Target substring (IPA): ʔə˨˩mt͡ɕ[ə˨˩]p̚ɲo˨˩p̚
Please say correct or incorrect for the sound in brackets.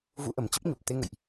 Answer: incorrect: ə˦˥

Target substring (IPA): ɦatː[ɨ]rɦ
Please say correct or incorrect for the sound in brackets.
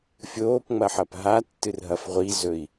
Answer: correct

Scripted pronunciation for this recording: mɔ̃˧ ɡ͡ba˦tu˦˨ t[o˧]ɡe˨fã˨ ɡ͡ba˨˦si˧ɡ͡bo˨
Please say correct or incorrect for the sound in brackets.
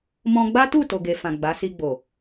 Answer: incorrect: o˨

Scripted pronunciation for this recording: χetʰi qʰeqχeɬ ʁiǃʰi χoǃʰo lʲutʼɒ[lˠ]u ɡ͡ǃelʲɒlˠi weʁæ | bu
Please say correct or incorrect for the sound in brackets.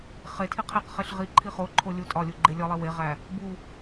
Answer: incorrect: lʲ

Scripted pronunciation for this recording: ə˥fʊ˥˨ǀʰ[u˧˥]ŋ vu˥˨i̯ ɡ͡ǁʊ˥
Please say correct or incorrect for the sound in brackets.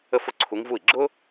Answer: correct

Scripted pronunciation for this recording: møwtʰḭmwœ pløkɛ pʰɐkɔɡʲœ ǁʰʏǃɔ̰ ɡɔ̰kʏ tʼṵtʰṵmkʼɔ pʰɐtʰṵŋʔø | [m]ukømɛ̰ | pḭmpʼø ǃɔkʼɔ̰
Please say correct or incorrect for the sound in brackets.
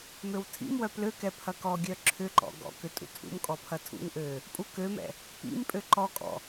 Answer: incorrect: pʼ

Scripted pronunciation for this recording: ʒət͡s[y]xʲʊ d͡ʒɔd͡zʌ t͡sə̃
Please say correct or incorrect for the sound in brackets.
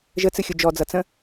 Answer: incorrect: ɨ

